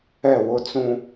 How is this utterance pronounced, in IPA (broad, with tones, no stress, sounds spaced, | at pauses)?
ɛ˦˨ w ʊ˧ t͡s ũ˧